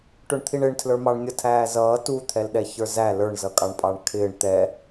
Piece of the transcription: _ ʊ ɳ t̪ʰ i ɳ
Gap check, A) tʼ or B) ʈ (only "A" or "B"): B